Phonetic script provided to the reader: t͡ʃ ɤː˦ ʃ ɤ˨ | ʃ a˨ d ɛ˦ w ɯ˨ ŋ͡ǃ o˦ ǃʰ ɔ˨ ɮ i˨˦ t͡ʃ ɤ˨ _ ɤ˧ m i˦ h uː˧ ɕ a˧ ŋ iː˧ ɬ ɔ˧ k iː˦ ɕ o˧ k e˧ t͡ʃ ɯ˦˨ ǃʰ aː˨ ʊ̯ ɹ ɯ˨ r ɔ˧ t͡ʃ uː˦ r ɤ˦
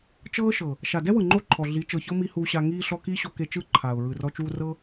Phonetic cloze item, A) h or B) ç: B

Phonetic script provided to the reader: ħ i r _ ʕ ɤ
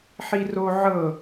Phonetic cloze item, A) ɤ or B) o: B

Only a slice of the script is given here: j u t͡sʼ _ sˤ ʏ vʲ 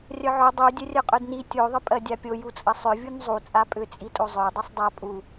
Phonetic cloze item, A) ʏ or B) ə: B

